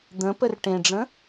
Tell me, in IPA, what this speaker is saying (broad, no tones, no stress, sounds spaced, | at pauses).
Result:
d̪ ə̃ p ə r ʈ ẽ ɖ͡ʐ ə̃